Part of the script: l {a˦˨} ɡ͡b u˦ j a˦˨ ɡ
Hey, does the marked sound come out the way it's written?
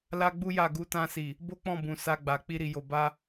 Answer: no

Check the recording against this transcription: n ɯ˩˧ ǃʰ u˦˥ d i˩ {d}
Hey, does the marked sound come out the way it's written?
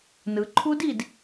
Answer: yes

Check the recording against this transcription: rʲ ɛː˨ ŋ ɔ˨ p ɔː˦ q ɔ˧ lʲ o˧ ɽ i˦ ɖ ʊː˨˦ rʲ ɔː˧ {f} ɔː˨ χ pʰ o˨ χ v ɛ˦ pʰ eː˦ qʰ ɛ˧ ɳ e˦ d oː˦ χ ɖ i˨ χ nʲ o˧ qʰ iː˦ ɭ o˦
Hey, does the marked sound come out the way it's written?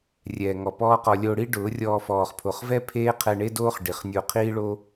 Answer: yes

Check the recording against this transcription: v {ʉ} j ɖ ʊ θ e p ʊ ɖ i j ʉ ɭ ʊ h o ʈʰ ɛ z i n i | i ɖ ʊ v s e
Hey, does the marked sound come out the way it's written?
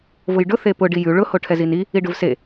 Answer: no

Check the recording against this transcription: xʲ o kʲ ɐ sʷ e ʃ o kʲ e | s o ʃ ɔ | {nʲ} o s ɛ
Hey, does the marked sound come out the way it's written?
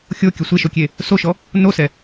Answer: no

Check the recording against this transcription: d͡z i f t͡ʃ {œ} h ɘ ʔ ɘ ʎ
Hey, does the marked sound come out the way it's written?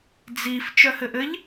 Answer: yes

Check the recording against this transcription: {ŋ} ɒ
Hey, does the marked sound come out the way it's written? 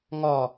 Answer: yes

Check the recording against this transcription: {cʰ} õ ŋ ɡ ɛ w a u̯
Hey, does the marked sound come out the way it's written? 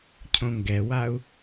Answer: yes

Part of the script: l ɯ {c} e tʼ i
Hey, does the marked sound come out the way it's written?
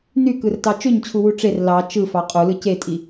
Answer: yes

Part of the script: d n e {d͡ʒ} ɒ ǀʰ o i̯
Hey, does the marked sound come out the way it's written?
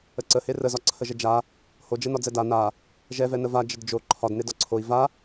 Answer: no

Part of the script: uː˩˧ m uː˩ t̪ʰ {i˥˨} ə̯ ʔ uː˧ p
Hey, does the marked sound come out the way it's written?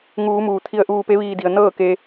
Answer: no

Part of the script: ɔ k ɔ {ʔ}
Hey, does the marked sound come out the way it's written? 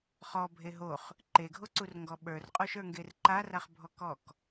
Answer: no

